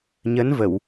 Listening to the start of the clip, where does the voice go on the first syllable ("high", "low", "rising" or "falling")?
rising